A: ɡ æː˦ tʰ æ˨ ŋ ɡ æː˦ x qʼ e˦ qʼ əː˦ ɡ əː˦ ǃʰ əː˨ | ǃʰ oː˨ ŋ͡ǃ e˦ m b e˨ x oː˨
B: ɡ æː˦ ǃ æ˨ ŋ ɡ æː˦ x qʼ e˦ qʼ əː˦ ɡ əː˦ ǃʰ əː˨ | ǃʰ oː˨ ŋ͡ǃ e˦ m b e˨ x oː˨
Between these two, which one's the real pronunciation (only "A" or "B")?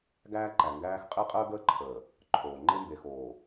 B